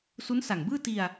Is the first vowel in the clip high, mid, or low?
high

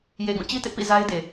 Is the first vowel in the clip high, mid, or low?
mid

